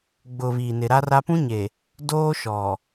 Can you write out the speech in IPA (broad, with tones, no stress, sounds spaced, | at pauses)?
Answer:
ɡ͡b ʊ˨ β iː˨ n ɪ˨ ɾ a˦ r a˦ p ũ˦ ɲ e˨ | d oː˦ ʃ ɔ˨